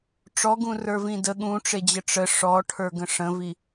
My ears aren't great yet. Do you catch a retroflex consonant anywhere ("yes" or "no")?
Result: yes